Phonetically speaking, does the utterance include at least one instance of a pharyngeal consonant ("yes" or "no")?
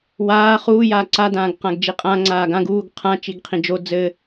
no